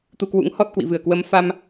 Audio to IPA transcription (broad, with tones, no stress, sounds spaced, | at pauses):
t̪ u˧ k w ṵ˧˥ ŋ h ɔ˦˥ t̚ k w ḭ˧˨ v ɨ˨˩ ə̯ k w ə˨˦ m f a˧ m